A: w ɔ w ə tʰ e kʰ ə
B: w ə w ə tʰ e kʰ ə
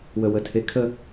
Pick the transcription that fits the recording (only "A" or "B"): B